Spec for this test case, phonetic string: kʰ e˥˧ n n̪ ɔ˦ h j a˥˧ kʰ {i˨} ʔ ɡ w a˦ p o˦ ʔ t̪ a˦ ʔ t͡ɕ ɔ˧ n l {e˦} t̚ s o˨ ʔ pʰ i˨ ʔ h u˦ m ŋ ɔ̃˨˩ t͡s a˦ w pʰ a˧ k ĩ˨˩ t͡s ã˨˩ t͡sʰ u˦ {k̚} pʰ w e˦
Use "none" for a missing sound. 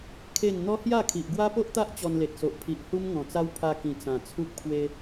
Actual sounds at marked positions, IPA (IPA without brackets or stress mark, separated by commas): i˨, e˨, k̚